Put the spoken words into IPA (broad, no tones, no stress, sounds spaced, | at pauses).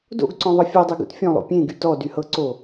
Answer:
d o̰ ɡ ǀ ɔ̃ ðˤ ʌ fʲ ɔ dˤ y ɡ ṵ t fʲ ɔ̃ lˠ o̰ pʲ ẽ ɡ y t ɔ d y h ɤ ǀ o